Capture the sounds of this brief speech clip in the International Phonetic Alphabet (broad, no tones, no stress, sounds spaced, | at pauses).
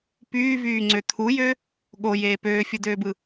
p yː v yː ŋ͡ǀ ø t̪ʰ u j ø | ɠ o j eː p øː fʲ ɯ d øː b ɯ